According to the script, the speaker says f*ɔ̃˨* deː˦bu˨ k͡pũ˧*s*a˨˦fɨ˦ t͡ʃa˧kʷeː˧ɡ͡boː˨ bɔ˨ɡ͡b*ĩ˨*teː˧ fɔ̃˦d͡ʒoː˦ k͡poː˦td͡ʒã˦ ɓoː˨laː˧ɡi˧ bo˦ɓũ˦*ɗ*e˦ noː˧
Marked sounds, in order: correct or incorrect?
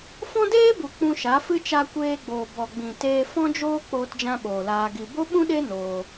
incorrect: ɔ̃˦, incorrect: ʃ, correct, correct

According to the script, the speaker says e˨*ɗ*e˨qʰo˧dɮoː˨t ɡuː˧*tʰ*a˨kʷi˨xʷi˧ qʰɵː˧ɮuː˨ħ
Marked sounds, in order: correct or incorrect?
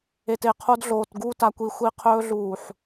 incorrect: t, incorrect: t

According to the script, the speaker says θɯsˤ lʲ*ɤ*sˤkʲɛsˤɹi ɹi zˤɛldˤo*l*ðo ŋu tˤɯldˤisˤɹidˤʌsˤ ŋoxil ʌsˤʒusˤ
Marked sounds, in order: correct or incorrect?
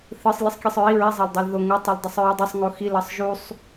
incorrect: ɯ, correct

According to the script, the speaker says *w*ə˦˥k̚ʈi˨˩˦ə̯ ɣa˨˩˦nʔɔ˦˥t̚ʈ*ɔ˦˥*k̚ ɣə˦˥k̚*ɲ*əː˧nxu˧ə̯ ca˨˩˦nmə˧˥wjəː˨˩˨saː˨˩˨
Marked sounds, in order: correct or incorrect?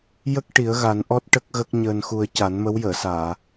incorrect: j, incorrect: ə˦˥, correct

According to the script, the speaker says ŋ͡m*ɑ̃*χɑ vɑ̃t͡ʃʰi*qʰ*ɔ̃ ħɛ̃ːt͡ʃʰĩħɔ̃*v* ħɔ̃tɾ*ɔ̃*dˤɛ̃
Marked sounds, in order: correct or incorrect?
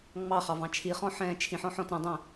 incorrect: ɑ, incorrect: χ, incorrect: none, correct

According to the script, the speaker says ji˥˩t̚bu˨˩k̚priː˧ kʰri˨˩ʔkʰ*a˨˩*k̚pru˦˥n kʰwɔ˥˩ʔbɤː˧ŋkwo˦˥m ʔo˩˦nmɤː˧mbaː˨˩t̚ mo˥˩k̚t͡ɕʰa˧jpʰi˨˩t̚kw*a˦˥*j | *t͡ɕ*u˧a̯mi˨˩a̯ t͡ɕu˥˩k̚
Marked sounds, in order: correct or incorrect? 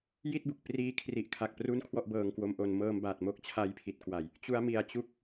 correct, incorrect: a˨˩, correct

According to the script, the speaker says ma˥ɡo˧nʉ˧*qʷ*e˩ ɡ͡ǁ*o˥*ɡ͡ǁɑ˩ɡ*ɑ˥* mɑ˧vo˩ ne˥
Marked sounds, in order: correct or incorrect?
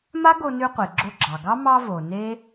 correct, incorrect: o˧, correct

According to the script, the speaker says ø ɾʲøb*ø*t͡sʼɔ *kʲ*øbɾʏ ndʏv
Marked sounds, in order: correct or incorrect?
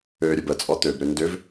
incorrect: ə, incorrect: t̪

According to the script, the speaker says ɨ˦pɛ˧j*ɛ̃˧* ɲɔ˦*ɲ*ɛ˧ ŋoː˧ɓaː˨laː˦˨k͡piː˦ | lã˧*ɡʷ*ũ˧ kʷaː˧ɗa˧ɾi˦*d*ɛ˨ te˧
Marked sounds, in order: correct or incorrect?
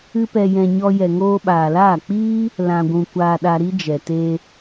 correct, incorrect: j, correct, incorrect: d͡ʒ

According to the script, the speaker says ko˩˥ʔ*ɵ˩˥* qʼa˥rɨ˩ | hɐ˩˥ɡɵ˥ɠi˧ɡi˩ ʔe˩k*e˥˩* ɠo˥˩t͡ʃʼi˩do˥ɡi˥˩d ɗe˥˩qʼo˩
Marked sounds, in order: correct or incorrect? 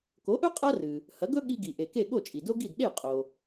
incorrect: ɵ˥, correct

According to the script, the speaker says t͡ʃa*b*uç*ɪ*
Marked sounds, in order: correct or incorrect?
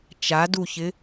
incorrect: d, correct

